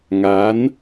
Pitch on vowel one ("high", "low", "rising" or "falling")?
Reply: rising